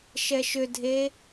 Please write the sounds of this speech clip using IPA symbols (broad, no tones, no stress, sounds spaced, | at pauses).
ʃ ɛ ʃ ʏ dʱ e